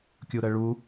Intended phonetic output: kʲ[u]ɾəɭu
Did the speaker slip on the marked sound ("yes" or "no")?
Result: no